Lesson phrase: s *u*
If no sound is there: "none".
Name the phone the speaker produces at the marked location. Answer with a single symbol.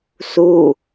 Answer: u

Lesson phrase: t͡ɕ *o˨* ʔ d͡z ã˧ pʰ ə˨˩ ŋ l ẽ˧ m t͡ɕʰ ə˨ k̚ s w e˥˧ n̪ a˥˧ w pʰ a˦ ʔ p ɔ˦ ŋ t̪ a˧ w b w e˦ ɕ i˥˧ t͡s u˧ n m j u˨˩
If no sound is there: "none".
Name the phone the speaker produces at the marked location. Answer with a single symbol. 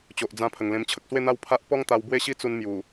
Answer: o˨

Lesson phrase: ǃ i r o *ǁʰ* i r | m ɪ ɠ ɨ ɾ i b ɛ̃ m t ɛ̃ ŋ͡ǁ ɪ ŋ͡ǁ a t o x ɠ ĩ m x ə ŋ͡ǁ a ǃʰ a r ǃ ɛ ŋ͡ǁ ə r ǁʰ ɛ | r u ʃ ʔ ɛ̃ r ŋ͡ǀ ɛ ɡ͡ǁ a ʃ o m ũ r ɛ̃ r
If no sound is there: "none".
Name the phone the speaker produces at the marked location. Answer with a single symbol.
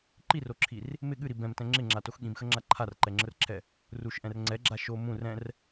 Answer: ǁʰ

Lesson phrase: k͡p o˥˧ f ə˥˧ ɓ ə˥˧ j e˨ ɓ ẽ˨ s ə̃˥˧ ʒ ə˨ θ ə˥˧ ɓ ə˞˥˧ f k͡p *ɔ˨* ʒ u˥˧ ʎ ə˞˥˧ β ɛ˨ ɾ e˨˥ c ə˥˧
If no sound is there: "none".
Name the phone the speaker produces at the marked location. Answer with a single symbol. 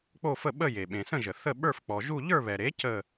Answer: ɔ˨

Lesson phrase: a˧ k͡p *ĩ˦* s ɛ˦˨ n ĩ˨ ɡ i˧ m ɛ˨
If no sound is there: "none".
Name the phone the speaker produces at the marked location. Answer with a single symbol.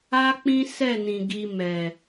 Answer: ĩ˦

